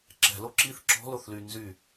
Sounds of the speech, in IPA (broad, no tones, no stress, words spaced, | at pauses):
ǁɛ̤lo ǁiθ ǁɔ̤loθly nzy